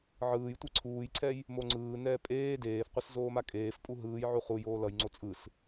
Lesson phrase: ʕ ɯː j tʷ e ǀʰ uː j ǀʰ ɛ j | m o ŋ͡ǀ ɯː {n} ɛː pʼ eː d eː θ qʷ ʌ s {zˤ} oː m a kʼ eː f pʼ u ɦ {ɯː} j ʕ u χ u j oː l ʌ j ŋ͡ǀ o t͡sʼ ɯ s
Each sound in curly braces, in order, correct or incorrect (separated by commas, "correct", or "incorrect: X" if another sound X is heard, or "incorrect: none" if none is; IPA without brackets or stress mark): correct, incorrect: z, correct